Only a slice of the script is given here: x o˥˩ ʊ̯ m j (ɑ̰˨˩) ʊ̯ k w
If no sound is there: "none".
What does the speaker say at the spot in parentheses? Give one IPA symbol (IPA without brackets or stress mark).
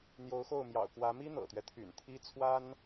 ɑ̰˨˩